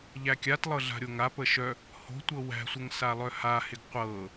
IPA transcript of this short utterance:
ʎ æ kʲ a t lˠ ɤ ɮ a̤ ɾʲ o ŋ a p ə ʃ œ | h o̤ tʷ ɤ w æ̤ sʷ ə ŋ s a lˠ œ h a h ɪ ɡ qʷ ɤ

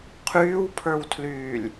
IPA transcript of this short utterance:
qʰ yː w pʰ ə˞ w tʰ l yː lʲ

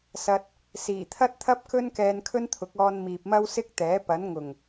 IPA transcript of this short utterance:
s ɐ˧ t̚ | s iː˨˩ t̪ʰ ɐ˥ t̚ t̪ʰ ɐ˥ p̚ k ɵ˥ n k ɛː˧ n kʰ ɵ˥ n t̪ʰ ʊ˨˥ k̚ ɔː˧ n m iː˨ p̚ m ɐ˥ w s ɪ˥ k̚ t̪ ɛː˨˥ p ɐ˨˥ n ŋ ʊ˨˩ ŋ

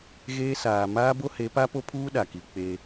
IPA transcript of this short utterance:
ɣ eː˦ s aː˨ m aː˦ b o˦ h e˨˦ p a˦ p o˦ pʰ uː˦ ɗ a˨ k i˨ k͡p e˦

